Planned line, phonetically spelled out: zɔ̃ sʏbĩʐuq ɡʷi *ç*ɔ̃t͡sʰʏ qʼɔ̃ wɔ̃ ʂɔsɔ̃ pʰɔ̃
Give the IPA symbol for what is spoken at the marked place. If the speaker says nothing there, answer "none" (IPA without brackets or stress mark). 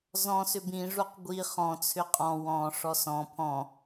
χ